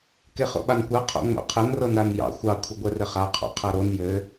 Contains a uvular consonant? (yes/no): yes